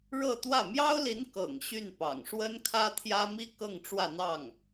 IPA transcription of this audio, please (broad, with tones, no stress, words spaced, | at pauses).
ɻɤ˥˧t̪wä˥˩ mjɑ˥ʊ̯li˧˥n kɤ̰˨˩ŋ ɕy˥˩npɑ̰˨˩ŋ ʂwə˥nkʰä˥t̪ʰjä˥ mi˥ kɤ˥˧ŋ ʈ͡ʂwä˥˧n̪ɑ˥˩ŋ